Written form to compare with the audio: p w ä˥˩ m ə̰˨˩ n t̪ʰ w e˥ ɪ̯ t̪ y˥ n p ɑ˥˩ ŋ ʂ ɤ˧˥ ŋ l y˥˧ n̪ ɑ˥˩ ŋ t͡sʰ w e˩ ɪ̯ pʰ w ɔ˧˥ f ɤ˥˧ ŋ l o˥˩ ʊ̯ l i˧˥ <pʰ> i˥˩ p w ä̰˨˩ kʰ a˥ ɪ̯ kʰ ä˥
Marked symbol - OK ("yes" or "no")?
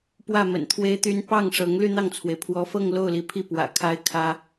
yes